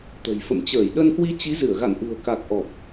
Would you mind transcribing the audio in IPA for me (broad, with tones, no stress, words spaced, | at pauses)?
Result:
t̪ə̤˨˩jfə̰˧˨m t͡ɕəː˧˩jɗə˧nkwi˧ t͡ɕi˨˦zɨ˧˩ə̯ɣa̰˧˨n ʔṳ˨˩ə̯ka˨˩k̚ ʔɔ˨˩p̚